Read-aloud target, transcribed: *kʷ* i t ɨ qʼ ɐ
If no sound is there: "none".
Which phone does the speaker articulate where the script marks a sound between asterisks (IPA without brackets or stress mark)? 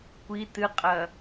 kʷ